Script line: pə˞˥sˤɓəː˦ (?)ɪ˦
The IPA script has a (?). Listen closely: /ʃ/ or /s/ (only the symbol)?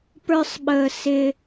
s